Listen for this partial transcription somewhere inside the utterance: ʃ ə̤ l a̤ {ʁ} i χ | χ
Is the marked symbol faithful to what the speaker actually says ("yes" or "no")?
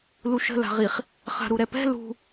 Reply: yes